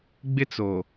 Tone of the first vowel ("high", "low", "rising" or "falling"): high